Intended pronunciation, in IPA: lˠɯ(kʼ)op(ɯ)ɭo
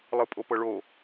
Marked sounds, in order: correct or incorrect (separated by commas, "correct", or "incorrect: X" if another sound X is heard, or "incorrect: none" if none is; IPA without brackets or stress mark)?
incorrect: pʼ, incorrect: ɤ